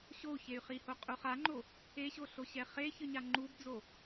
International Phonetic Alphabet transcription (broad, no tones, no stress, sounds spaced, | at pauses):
ɕ o u̯ ç e y̯ χ i h o qʼ u χ a ŋ͡ǃ o | e ɕ o ɬ o ɕ ɛ χ e ç ɯ ɲ a ŋ͡ǃ u b d͡z o